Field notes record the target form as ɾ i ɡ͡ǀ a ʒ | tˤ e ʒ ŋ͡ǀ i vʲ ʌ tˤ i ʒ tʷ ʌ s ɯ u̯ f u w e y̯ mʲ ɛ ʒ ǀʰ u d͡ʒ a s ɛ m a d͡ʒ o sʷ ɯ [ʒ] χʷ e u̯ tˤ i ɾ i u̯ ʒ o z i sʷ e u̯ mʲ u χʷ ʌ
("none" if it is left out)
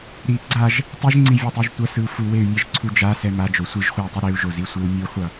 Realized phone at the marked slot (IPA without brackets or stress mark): ʒ